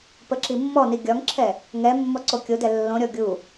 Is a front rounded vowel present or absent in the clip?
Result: absent